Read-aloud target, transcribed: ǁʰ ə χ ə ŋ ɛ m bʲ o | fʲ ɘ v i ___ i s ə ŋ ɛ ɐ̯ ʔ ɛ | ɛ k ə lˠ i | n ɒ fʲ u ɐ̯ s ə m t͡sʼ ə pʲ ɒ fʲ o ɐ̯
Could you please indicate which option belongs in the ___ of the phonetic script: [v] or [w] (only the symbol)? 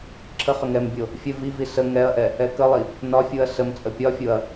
v